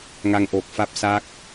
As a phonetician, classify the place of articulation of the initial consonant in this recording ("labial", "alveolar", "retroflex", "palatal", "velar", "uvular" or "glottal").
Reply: velar